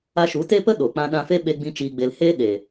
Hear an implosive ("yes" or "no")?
yes